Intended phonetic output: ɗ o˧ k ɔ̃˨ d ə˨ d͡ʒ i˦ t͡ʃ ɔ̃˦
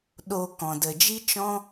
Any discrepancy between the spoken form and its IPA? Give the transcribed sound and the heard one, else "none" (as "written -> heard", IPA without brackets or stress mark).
none